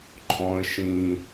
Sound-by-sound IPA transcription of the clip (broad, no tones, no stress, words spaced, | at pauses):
ǃʼɔ̃ə̯ ʃĩ